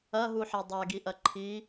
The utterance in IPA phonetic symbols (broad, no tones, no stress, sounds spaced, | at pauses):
ɐ ɦ u ħ a dˤ a ɡ i ʔ ɐ ǃʰ i